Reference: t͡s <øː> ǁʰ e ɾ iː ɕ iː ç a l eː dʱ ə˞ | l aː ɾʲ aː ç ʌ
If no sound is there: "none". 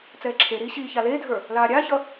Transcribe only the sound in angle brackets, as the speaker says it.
ɛː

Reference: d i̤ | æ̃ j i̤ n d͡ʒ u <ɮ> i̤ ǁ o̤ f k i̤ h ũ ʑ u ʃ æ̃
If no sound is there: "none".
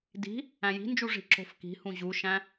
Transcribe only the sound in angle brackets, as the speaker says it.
ʐ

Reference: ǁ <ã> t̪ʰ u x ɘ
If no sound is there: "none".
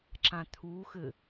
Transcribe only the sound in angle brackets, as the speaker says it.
ã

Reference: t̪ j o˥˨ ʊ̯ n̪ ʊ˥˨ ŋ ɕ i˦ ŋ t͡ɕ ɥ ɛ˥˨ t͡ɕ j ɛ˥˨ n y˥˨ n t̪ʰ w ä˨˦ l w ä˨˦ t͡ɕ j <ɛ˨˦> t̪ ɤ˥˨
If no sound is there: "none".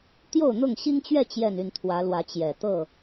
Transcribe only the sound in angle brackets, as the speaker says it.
ɛ˨˩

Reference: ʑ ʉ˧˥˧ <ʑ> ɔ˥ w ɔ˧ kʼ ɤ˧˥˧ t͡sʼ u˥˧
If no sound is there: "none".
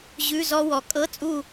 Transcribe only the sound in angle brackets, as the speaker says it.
z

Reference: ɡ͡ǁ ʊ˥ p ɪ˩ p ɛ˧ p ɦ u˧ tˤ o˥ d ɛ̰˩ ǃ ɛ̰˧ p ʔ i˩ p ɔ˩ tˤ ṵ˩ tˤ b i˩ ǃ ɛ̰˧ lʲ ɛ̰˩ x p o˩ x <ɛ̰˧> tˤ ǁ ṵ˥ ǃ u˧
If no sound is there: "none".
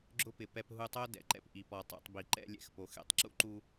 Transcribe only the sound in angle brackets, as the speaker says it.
ɛ̰˧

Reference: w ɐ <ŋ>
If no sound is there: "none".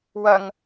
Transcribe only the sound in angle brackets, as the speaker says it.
ŋ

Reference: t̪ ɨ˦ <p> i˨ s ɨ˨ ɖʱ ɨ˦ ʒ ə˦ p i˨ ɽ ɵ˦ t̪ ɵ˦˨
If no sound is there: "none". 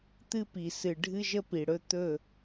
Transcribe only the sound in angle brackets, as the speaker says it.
p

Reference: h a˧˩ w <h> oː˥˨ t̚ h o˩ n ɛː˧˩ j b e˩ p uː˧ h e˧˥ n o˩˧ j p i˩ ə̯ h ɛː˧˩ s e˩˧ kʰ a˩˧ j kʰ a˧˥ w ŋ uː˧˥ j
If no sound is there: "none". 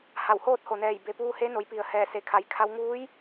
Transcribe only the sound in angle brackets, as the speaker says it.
h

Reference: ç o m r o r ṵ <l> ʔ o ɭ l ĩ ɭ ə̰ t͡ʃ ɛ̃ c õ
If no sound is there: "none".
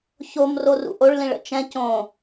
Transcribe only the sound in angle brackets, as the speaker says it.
none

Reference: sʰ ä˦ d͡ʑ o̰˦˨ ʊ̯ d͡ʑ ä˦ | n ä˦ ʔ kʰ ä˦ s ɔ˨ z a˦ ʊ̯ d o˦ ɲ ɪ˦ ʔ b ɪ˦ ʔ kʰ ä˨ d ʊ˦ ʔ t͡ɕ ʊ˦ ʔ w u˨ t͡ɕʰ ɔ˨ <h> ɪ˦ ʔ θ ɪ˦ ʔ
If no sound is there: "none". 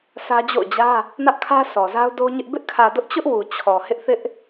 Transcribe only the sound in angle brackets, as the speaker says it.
h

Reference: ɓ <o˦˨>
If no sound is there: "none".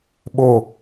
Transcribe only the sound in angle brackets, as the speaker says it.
o˦˨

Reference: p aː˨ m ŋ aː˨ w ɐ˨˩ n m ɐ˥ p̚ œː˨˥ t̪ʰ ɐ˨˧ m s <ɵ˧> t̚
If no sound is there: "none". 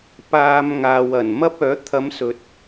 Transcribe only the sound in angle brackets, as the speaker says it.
ɵ˨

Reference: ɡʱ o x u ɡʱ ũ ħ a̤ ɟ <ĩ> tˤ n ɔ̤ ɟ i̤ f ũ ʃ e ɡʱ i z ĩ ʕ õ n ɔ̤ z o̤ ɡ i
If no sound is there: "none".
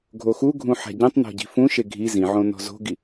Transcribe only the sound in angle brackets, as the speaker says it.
ĩ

